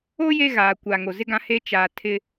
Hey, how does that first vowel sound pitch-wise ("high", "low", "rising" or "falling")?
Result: high